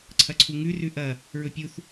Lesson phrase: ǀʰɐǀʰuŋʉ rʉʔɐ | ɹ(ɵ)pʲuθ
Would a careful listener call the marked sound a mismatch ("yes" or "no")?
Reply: no